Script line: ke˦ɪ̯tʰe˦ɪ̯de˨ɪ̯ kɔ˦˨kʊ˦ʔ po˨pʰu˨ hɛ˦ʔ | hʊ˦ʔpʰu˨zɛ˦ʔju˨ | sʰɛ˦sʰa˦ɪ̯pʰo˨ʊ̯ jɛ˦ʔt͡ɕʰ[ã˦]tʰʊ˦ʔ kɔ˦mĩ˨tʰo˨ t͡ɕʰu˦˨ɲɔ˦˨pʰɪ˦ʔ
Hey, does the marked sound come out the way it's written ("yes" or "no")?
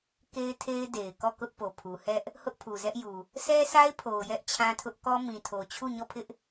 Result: yes